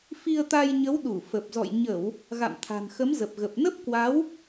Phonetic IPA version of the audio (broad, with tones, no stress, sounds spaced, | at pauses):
f i˧ ə̯ t̪ a˧ j ɲ ə˨˦ w ɗ u˧˩ f ə˨˩ p̚ z ɔ̰˧˨ j ɲ ə˧˩˨ w | ɣ a̰˧˨ m t̪ʰ a̤˨˩ n x ə˨˦ m z ə˨˩ p̚ ɣ ə˨˩ p̚ n ə˦˥ p̚ k w a˨˦ w